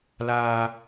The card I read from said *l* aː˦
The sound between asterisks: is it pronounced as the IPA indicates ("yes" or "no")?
yes